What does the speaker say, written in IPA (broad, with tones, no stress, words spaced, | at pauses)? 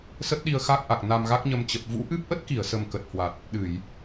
sə˦˥t̚ɗi˧ə̯xa˦˥k̚ʔa˨˩k̚ na˧mɣa˦˥k̚ɲə˧m t͡ɕə˨˩p̚ vṵ˧˥ʔɨ˦˥p̚ ʔə˦˥t̚ki˧˩ə̯sə˨˩m kə˨˩t̚hwa˨˩t̚ | ɗɨ˧˩˨j